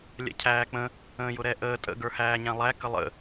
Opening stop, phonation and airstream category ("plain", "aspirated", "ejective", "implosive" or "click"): aspirated